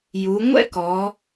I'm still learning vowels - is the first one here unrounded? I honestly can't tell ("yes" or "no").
no